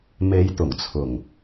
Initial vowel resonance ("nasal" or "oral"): oral